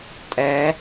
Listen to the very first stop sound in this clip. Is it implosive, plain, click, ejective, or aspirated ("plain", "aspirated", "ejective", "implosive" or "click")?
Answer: ejective